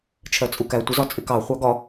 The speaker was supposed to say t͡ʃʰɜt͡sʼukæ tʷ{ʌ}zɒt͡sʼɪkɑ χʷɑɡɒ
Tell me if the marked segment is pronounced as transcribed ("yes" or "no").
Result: yes